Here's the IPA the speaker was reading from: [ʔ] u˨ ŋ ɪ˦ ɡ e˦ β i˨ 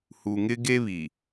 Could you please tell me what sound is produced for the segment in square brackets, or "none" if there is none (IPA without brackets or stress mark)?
h